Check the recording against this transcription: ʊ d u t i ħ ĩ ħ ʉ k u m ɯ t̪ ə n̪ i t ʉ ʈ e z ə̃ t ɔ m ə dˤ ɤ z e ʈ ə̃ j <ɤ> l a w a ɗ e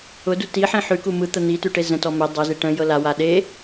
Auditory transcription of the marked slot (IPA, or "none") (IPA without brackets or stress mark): ɤ